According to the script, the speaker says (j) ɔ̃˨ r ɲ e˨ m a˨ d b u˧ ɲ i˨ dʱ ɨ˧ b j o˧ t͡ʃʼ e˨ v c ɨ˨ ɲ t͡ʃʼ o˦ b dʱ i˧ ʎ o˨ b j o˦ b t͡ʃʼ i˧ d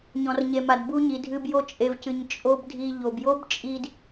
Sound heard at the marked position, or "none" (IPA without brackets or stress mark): ɲ